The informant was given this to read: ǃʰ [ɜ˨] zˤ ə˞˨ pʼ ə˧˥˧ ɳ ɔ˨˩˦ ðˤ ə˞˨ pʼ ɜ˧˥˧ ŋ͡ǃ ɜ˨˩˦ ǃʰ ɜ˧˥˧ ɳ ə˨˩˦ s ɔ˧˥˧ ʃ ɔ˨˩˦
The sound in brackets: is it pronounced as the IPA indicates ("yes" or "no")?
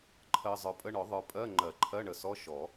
yes